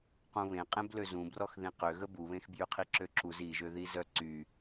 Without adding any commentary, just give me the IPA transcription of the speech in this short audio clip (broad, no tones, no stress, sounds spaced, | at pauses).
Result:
q ũ β ẽ qʼ ẽ b l ø z ũ b r ɔ x ð ĩ q ø ɣ ə b u β ẽ x b j y qʰ i ǁ ø ǁ u z i ʒ ø ð i z œ ǀ y